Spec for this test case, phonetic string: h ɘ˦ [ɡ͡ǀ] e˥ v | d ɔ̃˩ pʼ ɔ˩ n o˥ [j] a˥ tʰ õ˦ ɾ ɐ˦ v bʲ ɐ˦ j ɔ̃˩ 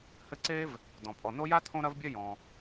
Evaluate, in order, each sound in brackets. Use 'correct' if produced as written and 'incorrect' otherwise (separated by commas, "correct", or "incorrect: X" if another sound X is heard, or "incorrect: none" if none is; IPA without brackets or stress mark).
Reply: incorrect: ǀ, correct